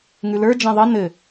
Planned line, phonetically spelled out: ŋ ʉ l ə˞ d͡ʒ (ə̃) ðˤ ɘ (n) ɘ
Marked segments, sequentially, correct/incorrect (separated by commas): incorrect, correct